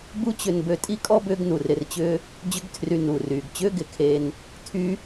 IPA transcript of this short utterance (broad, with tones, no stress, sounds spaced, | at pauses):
b u˦ t͡ɕ ʏ˧ n b ø˧ tʼ i˦ kʼ ɔ˦ b ʏː˦ ɡ n u˨ r ɪ˧ r t͡ɕ ʏː˦ | d͡ʑ ʏ˦ ɡ tʰ r y˧ n uː˨ r yː˨ ɡ t͡ɕ ʏː˦ ɡ ɪ˨ kʰ eː˧ n | tʰ y˦